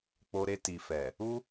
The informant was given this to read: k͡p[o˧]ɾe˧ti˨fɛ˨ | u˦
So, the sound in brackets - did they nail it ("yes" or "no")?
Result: yes